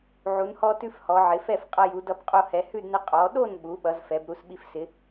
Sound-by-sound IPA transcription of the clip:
ʕ u˩˧ n h ɔ˧ t ʉ˧ f h ɔ˩˧ ʕ ɪ˩˧ f ɛ˥˨ f qʼ ʌ˧ j u˩˧ d ʌ˧ b qʼ o˧ h ɛ˩˧ h ʉ˥˨ d n ɪ˧ qʼ ɔ˩˧ ɗ o˥˨ n ɓ u˩˧ ɓ ʌ˩˧ z f ɛ˩˧ b ɾ u˧ s ɓ i˧ f s ɪ˩˧

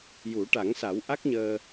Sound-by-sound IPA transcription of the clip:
j u˨˩˦ ʈ a˨˩˦ ŋ s a˨˩˦ w ʔ a˦˥ k̚ ɲ əː˧

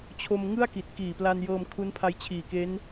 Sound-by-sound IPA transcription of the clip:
t͡ɕʰ o˧ m ŋ ɯ˥˩ a̯ k i˨˩ t̚ k iː˨˩ p l a˧ n j ɤː˧ m kʰ u˦˥ n pʰ a˧ j t͡ɕʰ iː˨˩ k e˦˥ n

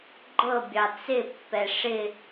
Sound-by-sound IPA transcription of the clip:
ɡ͡ǃ ɤ bʲ ɑ t͡s ɪ pː ɛ ʂ ɪ

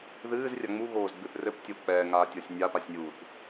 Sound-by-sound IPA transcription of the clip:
ð ɨː z rʲ a ŋ͡m u ɣ oː z ɡ͡b ɨ θ r ɘ p tʲ o k͡p ɛː ŋ aː tʲ ɔ sʲ nʲ a p a sʲ nʲ uː θ

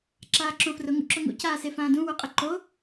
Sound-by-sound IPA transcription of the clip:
ǁ aː ǁ õ f r ʊ ŋ ṵ ǁ ʊ ŋ ṵ c aː s e f ãː d ũ w u qʼ ɪ ǃ o

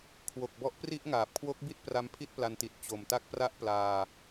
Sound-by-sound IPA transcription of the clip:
kʰ w o˨˩ k̚ b ɔ˦˥ ʔ p r i˥˩ ʔ ŋ aː˨˩ p̚ kʰ w o˦˥ k̚ b i˥˩ t̚ p r a˦˥ m pʰ i˥˩ t̚ p l a˧ n t i˨˩ t̚ t͡ɕ o˨˩ m t a˦˥ k̚ p r a˦˥ ʔ p l aː˧

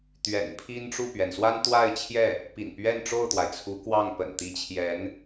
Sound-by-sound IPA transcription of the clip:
t̪ ɥ ɛ̰˨˩ n pʰ i˥ n ʈ͡ʂ u˥˩ p ɥ ɛ˩ n s w a˥ n t̪ w a˥˧ ɪ̯ t͡ɕʰ j ɛ˥˩ | p ḭ˨˩ n p ɥ ɛ˥˧ n ʈ͡ʂ o˥˩ ʊ̯ t̪ w a˩ ɪ̯ t͡sʰ u˧˥ k w ɑ˥˩ ŋ p ə̰˨˩ n t̪ i˧˥ t͡ɕʰ j ɛ˧˥ n

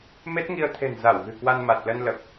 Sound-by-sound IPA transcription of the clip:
m e˦˥ t̚ ŋ i˧ ə̯ t̪ʰ e̤˨˩ n z a˧˩ w ɣ ɨ̤˨˩ k w a˧ n m a˨˩ t̚ l ə˧ n l ə˨˩ p̚

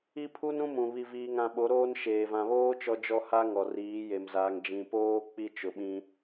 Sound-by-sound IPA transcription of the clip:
i˦ pʰ u˦ n ũ˦ m ũ˨ β i˨ v iː˨ ŋ ã˨ ɓ o˨˦ ɾ oː˦ n ʃ eː˨ v ã˨ β oː˦ t͡ʃ ɔ˦ d͡ʒ ɔ˦ h a˦ ŋ ɔ˨ r iː˨˦ j e˨ m z aː˨ ŋ d͡ʒ ĩ˨ p oː˦ k͡p i˦ t͡ʃ ʊ˨ ɓ ĩ˦

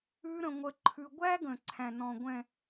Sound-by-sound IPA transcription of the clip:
ʉ˦ ɾ ə̃˦ ŋʷ ə˦ ǃʰ ʉ˦ ɡʷ æ˦ ɡ ə̃˨ ǀʰ æ̃˨ n ɔ̃˨ ɡʷ ɛ̃˨

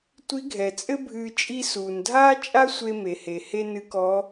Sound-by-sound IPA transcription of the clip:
tʷ i˧˥ ɡʱ ɛ˩ t͡sʼ ɘ˥ bʱ ɨː˧ t͡ʃʼ i˥ s uː˩ n dʱ aː˥ t͡ʃʼ a˥ sʷ e˧ m e˩ h e˩ h e˥ n ɨ˧˥ k ɔ˧˥

